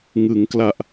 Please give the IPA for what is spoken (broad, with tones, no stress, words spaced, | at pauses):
ŋɯ˩˦ŋkla˨˩ʔ